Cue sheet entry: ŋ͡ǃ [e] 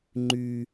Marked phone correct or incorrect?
incorrect: y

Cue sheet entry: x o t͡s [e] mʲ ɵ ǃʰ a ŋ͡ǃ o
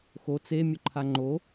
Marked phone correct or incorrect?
correct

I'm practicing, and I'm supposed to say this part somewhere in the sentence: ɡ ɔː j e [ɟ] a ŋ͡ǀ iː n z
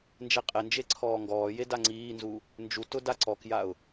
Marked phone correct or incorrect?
incorrect: d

